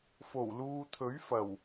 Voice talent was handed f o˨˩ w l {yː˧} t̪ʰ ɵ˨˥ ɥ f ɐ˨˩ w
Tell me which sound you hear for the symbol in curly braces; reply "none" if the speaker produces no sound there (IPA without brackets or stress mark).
uː˧